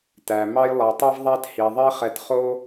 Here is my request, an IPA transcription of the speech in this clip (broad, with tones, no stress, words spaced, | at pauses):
tæ˩ mɑ˦jlˠɑ˩tˤɛ˥v ðˤæ˦thi˩ ðˤe˦χɛ˨t χo˦